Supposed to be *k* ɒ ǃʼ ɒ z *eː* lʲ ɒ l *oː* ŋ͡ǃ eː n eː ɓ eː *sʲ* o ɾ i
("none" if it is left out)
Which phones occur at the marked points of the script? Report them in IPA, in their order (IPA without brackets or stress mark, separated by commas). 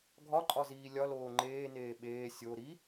ɡʱ, iː, oː, sʲ